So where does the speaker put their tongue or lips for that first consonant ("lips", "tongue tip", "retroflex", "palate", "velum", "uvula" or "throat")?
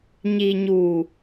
palate